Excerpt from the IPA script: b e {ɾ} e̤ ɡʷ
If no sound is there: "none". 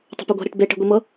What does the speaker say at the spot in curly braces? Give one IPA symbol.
ʈ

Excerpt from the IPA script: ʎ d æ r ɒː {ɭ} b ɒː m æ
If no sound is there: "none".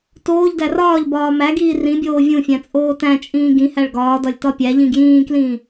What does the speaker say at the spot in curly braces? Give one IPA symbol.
ʎ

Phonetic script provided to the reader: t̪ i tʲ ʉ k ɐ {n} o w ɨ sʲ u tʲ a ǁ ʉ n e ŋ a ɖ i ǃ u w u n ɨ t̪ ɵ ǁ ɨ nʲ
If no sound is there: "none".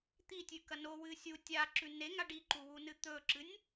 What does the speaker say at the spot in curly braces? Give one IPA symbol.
n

